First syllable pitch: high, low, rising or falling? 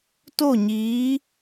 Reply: falling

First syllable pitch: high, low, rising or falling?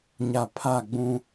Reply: low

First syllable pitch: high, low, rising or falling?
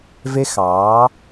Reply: high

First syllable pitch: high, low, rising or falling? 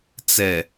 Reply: low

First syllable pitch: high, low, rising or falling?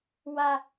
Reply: low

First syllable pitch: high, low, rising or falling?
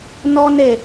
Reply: high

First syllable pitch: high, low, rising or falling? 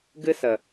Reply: high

